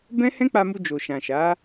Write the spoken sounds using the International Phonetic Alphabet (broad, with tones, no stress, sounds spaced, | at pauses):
b ɛ̃˦ h ɛ̃˦ k͡p a˧ m u˧ d͡ʒ o˨ ʃ ã˨ ʃ a˨˦